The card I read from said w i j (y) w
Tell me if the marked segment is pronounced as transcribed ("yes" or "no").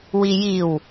no